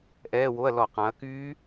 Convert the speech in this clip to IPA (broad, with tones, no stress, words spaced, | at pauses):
ʔɛː˧˥˧wo˧˥˧ɐ̯ lɔ˧˩˧ qã˩˧ɐ̯kyː˦˥